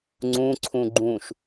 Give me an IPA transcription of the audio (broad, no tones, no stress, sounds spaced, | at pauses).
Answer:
ŋ͡ǀ ũ ǀʰ ũ ɡ͡ǃ ũ ʃ